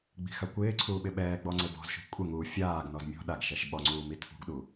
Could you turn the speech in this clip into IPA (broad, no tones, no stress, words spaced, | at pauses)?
ɡ͡bi̤xakʷɪːǀʰuː ɓɪɓɛːɡ͡bɔ ŋ͡ǀebɔ̤zʃṳ kʷʼɪŋuː fʲaːɡnɔz mʲɔ̤ ɗaɡʃɛʃ ɓɔŋ͡ǀuː mitʰṳɡɗu